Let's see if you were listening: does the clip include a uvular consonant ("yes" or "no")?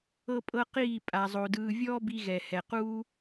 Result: yes